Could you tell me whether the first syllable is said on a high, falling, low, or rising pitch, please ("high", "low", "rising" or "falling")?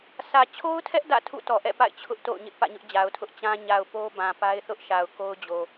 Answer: low